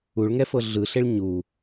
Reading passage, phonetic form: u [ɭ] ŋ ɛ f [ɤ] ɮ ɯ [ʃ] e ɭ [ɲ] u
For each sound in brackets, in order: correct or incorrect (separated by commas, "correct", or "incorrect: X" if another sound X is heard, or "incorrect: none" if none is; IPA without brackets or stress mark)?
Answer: correct, correct, incorrect: ɬ, correct